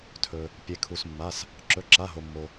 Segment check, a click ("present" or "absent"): present